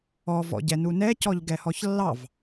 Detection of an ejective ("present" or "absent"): absent